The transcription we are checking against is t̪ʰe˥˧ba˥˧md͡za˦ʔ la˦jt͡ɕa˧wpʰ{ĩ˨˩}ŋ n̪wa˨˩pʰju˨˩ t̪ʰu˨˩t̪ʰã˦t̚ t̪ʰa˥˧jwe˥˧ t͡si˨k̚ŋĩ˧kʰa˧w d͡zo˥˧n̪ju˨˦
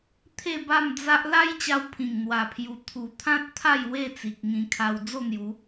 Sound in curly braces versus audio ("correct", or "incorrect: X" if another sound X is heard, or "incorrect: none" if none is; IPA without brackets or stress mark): correct